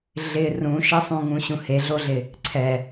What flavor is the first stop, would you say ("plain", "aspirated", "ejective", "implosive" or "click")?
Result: click